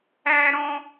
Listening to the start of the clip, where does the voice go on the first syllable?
high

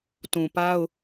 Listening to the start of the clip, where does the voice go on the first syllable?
low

